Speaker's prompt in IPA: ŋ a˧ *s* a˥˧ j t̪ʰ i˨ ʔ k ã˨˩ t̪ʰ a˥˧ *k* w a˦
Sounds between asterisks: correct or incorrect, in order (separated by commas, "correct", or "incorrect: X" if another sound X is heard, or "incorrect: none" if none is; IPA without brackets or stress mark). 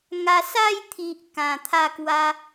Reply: correct, correct